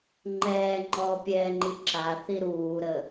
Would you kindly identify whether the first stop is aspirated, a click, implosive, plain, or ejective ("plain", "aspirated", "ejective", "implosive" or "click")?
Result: click